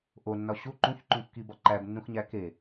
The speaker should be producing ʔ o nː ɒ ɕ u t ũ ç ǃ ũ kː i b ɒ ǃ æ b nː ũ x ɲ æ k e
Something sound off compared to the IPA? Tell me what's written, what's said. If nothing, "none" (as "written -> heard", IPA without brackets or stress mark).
t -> ǃ